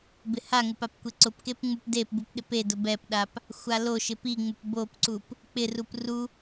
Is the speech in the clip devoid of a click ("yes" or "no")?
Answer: no